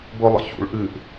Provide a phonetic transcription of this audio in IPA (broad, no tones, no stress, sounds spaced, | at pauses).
b ʊ lˠ ə̰ ç ṵ ɭ ʔ ɨ ʔ